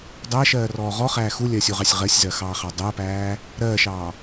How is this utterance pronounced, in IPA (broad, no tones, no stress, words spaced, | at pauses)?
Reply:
dˤæʃɜːrɔː ʁɔχæː xulʲɜsʲuʁɑsʲ ʁɜsʲzɜxɑːχɑ dˤæpæː | ɾɜːʃɑː